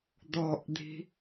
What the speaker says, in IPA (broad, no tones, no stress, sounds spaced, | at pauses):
d̪ ɔ ʔ d̪ i̤